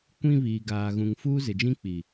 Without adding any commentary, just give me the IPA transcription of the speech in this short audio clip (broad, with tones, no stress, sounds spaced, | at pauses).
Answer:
kʷ ĩ˦ β iː˨ ɡ aː˨ ɣ ũ˨ ŋ f uː˦ z ɪ˨ d͡ʒ ĩ˦ k͡p i˨